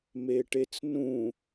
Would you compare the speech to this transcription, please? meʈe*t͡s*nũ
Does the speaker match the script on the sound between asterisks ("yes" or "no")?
yes